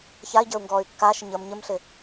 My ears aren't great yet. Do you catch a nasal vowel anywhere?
no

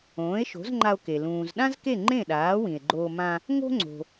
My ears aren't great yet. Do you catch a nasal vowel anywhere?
yes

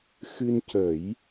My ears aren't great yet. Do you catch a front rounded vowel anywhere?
no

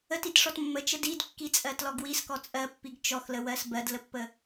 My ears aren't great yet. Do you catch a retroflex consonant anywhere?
yes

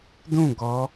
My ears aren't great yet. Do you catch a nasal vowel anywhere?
yes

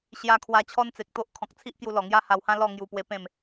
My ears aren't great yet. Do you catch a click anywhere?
no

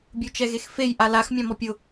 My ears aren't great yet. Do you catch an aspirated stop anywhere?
no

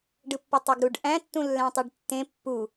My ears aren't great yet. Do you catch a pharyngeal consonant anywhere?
no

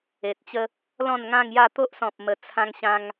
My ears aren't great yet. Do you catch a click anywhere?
no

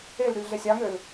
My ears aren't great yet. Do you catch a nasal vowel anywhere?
no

